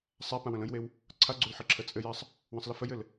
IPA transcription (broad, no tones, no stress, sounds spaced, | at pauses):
sˤ a p ã w ə̃ l ə̃ j w e w | ǀʰ a ɡ͡ǀ u l ħ ɘ ǁʰ ə t͡sʼ ɘ j a sˤ | w ə̃ sˤ l ə f ə j ɘ l